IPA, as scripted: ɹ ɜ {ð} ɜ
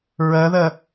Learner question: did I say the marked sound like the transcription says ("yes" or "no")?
yes